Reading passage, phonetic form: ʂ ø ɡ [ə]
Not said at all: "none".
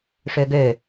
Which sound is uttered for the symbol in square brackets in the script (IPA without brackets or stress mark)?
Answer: ø